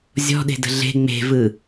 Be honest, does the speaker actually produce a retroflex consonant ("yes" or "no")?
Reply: no